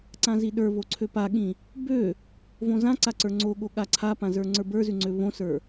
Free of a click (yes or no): no